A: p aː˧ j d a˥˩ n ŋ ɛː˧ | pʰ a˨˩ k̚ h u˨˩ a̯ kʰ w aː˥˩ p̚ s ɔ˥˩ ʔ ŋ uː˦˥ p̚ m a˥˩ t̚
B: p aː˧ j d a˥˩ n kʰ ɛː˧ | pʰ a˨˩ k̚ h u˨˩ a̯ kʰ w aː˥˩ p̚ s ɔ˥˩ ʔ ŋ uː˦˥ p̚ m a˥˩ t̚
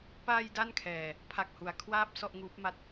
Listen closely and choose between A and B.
B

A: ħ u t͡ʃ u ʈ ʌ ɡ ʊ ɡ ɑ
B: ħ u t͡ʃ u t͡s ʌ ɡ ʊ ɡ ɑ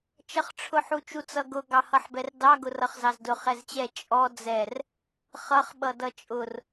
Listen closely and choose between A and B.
B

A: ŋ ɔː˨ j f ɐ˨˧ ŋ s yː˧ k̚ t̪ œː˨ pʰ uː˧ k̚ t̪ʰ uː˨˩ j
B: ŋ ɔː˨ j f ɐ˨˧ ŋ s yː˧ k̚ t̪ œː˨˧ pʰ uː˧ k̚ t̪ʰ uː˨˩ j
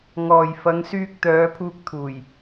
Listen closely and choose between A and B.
B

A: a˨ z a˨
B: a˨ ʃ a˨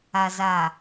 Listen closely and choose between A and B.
A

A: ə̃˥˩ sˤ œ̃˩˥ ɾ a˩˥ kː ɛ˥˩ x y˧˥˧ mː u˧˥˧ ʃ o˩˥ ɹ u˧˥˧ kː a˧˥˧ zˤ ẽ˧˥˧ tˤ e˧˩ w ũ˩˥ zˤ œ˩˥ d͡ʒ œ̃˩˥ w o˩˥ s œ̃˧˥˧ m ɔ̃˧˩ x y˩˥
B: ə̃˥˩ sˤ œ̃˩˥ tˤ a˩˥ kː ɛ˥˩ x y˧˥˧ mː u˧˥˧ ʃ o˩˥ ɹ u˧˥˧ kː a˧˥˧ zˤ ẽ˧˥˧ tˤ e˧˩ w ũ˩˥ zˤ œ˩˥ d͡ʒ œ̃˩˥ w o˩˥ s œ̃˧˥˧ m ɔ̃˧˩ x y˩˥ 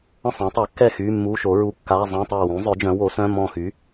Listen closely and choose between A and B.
B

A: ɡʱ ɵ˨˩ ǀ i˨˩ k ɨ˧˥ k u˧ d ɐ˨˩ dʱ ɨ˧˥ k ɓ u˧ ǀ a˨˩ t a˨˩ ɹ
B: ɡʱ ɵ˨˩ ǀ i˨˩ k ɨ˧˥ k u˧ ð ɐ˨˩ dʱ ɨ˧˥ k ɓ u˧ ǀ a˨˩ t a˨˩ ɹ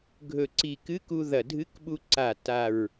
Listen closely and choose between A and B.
B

